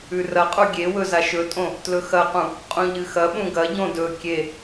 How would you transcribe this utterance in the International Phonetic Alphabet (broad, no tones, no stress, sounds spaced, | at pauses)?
ʉ r ɐ qʼ u ɡʲ e w ɵ z a ʃ ɵ tʼ õ | t l ɵ x ɐ q ũ | qʼ ũ ʎ ɨ x ɐ ɓ ũ ɡ ɐ ɟ õ d ɵ kʲ e